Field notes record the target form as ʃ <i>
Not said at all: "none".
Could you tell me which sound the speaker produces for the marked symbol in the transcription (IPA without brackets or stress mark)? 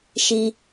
i